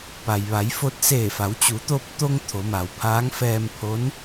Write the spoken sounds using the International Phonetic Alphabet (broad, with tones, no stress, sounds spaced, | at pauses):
p a˩ j ʋ a˩˧ j f o˧ t̚ s eː˧˩ f a˩˧ w t͡ɕ u˩˧ t̪ o˧ p̚ t̪ o˧ ŋ t̪ʰ o˩˧ m a˩ w pʰ aː˧˥ ŋ f ɛː˧ m pʰ o˧˥ n